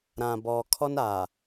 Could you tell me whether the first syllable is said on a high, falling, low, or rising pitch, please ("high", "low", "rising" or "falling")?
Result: low